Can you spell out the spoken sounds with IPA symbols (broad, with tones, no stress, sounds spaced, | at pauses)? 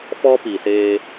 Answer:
f ɔ˦ p i˨ s eː˦